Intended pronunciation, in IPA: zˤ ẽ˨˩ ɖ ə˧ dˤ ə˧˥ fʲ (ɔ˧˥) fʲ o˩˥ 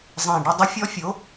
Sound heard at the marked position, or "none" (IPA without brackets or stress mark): ɔ˧˥